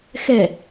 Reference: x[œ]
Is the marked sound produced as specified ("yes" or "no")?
no